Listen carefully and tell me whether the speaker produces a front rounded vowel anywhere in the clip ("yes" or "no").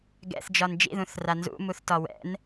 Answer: no